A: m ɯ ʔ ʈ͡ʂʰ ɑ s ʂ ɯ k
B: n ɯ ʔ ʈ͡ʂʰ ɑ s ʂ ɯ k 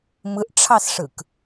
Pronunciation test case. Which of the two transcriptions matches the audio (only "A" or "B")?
A